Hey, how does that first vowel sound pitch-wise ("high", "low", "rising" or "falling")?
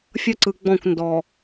high